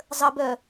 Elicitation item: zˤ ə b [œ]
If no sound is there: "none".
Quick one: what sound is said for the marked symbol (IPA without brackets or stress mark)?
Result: œ